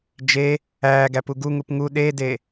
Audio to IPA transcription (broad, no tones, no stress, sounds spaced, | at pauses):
d͡ʒ e | æː ɡ æ p u ɡ u ŋ u p ŋ u ɗ e d e